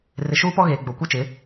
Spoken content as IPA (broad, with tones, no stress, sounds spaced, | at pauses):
r ɪ˨ ʃ uː˦ p ɔ˦ ɣ eː˨ ɡ͡b o˨ kʷ ɛ˦ t͡ʃ ɪ˨˦